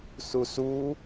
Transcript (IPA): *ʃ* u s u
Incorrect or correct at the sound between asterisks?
incorrect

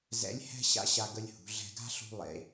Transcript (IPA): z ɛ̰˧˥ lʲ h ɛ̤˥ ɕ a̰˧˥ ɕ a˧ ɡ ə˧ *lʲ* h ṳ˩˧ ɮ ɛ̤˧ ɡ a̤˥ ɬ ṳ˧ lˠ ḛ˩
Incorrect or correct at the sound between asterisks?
correct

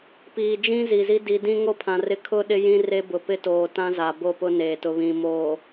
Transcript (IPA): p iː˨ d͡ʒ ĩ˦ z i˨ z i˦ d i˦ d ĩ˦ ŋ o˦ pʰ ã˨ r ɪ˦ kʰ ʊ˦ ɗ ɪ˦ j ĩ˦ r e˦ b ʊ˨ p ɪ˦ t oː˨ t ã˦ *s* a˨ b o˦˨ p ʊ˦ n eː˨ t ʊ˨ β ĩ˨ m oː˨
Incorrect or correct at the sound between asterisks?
incorrect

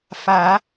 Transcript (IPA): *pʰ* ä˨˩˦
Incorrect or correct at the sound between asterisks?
incorrect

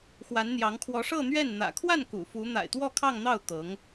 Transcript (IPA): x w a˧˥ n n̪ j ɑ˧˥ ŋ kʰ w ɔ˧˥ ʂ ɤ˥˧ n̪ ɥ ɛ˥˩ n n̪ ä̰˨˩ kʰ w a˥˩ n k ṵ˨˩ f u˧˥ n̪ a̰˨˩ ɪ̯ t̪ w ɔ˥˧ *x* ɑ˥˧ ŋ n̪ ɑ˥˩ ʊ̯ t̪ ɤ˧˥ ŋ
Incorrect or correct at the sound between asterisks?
incorrect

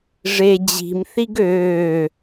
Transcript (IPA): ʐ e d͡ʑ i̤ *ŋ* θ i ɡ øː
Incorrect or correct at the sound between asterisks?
incorrect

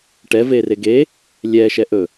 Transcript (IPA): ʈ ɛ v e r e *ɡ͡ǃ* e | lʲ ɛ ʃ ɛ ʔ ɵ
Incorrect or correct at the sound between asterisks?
incorrect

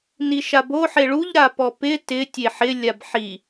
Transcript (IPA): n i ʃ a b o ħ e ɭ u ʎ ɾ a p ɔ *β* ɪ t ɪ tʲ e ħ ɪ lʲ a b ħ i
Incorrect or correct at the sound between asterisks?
incorrect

